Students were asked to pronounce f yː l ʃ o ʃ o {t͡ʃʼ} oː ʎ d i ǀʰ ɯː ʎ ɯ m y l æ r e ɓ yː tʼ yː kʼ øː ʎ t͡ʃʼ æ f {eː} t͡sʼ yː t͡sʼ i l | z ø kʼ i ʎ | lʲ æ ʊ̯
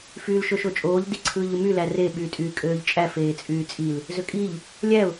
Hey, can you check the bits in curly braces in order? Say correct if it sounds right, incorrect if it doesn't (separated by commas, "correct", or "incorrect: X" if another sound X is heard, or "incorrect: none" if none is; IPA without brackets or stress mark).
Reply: correct, correct